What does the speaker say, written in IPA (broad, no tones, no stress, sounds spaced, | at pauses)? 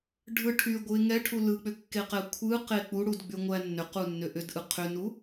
ɖʱ ɯ ʈʰ y ɡʷ ɯ ɪ̯ ŋ ɛ ʈʰ u l ɯ k͡p ʏ kː e q ɛ kʷʰ ɯ q e k͡p u ɽ u d ɡ͡b y ŋʷ æ nː ʏ q u nː ʏ ʔ ʏ d ʔ ɯ qʰ ʏ n u